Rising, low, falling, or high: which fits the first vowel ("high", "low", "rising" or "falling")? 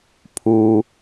low